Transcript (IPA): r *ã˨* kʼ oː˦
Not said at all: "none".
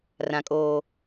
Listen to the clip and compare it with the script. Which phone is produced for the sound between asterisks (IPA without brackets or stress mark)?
ã˦